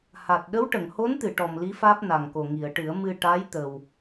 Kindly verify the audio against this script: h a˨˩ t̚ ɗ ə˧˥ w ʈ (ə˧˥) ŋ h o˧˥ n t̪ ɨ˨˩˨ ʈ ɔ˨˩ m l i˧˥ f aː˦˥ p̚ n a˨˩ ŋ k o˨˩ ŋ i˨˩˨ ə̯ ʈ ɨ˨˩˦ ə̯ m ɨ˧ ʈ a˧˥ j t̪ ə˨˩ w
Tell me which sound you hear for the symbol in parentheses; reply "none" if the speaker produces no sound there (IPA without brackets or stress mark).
ə˨˩˨